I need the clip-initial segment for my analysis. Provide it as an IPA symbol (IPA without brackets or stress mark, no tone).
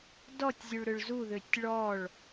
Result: d